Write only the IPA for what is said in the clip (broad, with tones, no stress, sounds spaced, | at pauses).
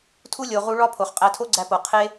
tʰ u˦ lʲ o˧ ʁ u˧ ɭ ɒ˦ pʰ o˨ χ qʼ æ˧ tʰ o˦ ɡ͡ǀ æ˧ p o˨ qʰ e˦